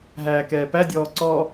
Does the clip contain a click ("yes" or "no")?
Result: yes